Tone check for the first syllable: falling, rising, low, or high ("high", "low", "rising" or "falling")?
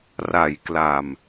low